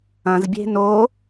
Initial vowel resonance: nasal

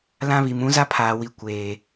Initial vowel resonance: nasal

